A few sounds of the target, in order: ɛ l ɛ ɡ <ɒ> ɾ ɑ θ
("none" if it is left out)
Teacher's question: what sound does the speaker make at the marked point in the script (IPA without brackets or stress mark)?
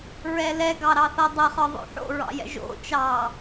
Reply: ɑ